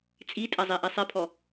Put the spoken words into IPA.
t͡sʼitʼɛzˤiʔi sˤepʰɔ

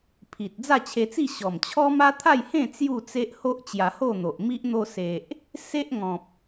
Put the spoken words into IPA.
pʰi˨t̚ d͡za˥˧t͡ɕʰe˧t͡si˥˧ ɕɔ˨˩m t͡ɕʰɔ˦ma˦t̪ʰa˥˧jhẽ˥˧ t͡sju˥˧t͡se˦ʔ ho˦ʔt͡ɕja˧ho˥˧n̪o˨ʔ mi˦ʔ n̪o˧ se˨ʔ | se˦ʔŋɔ̃˨p̚

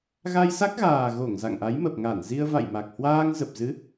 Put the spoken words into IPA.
ɣa˧jsa˦˥k̚ɣaː˨˩ ɣo˧˩ŋ za̰˧˨ŋʔa˨˦jmə˨˩p̚ŋa˧˩n zi˧ə̯va̰˧˨jma˨˩k̚ hwaː˧ŋzə˨˩p̚zɨ˨˦

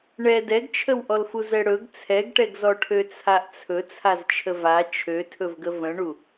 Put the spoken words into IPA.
ɳɛ dɛɡt͡ʃʰəwʔɔlfu zɛɽɵɡ t͡sʰɛɡʈɛɡzɔ ʈʰøt͡sʰaʔt͡sʰɵ t͡sʰazt͡ʃʰəva t͡ʃʰøtʰɵvɡə və̃ɳu

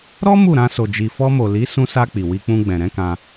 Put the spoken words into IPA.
ɾɔ˦ mu˦˨ɾã˧so˨ d͡ʒi˨fɔ˧mo˨ li˨˦sũ˧sa˧ k͡pi˨wi˧k͡pũ˧ ɡ͡bɛ̃˨ɾɛ̃˨˦kã˧

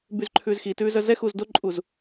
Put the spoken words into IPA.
byzǃʰʉːzxitʉːz œzɛxuz doǃʼuz

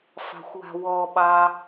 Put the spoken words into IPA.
fɑ̤xʷwa̤wɔɓɑ

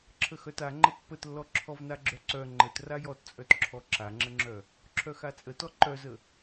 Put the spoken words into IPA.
ǁʰəxœta ŋ͡ǃəpːətlːɔ ǁʰɔvnaɡ͡ǁœǀœ ŋ͡ǃət rajɔtt͡sʼœtǁʰɔ ǁaŋ͡ǁəŋ͡ǁœ | ǁʰœxat͡sʼətɔ ǃœzə

